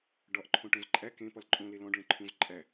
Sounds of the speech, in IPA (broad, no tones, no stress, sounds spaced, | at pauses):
ɖ ɒ ʔ ǃʰ õ ʈ õ z ǃʼ æ k ẽ p ɒ l ǃʼ õ l e l ɔ̃ ɖ ɭ ẽ ǃʰ ũ z ǃʼ æ